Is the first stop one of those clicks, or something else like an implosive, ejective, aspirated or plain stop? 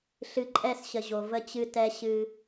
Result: click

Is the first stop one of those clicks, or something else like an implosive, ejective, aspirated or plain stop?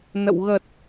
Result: plain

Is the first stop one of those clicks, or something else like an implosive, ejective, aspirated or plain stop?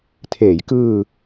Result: aspirated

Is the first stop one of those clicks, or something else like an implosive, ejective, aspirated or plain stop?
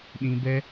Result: implosive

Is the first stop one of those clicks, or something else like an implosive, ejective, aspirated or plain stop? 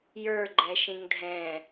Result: click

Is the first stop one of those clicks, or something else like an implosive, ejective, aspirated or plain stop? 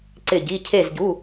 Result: click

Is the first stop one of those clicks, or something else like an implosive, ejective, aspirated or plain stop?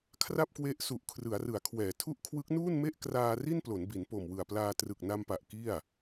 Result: aspirated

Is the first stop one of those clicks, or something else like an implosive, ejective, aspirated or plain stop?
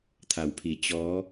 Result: aspirated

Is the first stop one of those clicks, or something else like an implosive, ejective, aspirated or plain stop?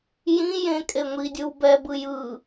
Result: ejective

